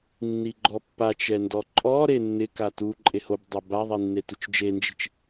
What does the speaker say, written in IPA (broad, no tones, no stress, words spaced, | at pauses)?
nːiɡ͡ǃɔpːat͡ʃɛ ndɔǃʼɔɾe nːɪka tu ǃʼehobdˤɛ baðˤi nːetut͡ʃd͡ʒend͡ʒi̤t͡ʃ